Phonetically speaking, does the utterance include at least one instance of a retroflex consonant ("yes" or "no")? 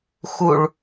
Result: yes